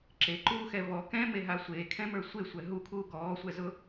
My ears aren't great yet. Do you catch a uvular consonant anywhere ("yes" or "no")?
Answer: no